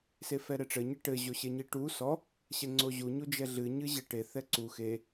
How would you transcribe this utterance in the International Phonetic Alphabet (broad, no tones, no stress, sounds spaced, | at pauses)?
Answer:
s e f ɛ ɾ ɛ ʈ͡ʂ ɘ ɲ ɘ ʈ ɘ ʑ o ɕ e ɲ i ʈ u s ɔ | ɕ ɛ ŋ͡ǀ o ʑ u ɲ u d͡ʒ ɛ ɮ ɨ ɲ ɨ ʑ e ʈ e θ ɛ ǀ u x e